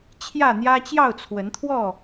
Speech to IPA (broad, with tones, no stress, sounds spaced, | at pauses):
t͡ɕʰ j ä˥˨ n̪ j ä˦ t͡ɕ j ɑ˥˨ ʊ̯ t͡sʰ w ə˨˦ n t̪ʰ w ɔ˥˨